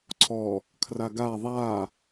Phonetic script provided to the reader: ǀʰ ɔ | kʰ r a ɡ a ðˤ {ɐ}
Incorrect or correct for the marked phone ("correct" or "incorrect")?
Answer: incorrect